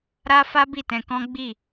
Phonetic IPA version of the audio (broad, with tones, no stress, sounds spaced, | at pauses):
ɾ a˦ f a˦ b i˦˨ t ɛ̃˧ k ɔ̃˦ ɡ͡b i˦˨